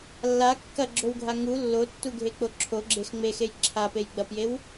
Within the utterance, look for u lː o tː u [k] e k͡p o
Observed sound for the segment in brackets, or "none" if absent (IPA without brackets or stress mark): ɡʱ